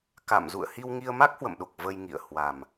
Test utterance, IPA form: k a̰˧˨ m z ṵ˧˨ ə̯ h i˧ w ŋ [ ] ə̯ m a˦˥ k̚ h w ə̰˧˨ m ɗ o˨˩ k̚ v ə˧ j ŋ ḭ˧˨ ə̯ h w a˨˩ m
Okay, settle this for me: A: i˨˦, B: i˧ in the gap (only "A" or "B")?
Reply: B